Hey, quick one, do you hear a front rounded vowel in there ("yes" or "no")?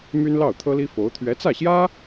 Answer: yes